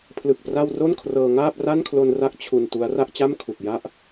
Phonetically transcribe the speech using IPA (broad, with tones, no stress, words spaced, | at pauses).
pʰlɯ˨˩k̚ pra˥˩w ro˥˩n kʰrɤː˧ŋaː˥˩p̚ ra˥˩nkʰlo˧nra˦˥k̚ t͡ɕʰu˧ntu˦˥a̯ ra˥˩ʔt͡ɕa˥˩mkʰu˨˩k̚ ja˥˩ʔ